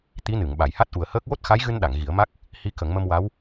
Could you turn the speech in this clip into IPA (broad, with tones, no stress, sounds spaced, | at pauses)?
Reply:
t̪ i˧˥ n ɨ˨˩˨ ŋ ɓ a˨˩˨ j h a˦˥ t̚ ʔ u˨˩ ə̯ h əː˦˥ k̚ w o˦˥ t̚ x a˧˥ j ɣ ɨ˧ n ɗ a˨˩˨ ŋ ɣ i˨˩˦ ə̯ m a˦˥ k̚ | h i˧ k ə˨˩˦ ŋ m ə˧ m w a˧˥ w